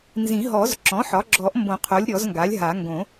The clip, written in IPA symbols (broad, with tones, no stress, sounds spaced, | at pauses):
n z ĩ˨˩˦ ɦ ɔ˨˩˦ z ǁ ɔ̃˩˥ ħ ɒ˩˥ ɡ͡ǁ ɔ˨˩˦ ʔ m b õ˨˩˦ qʰ o˩˥ lʲ ɾʲ ɔ˨˩˦ z ŋ ɡ a˩˥ lʲ ɦ a˨˩˦ ŋ ɡ õ˨˩˦